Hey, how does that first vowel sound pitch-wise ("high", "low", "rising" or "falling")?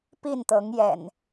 falling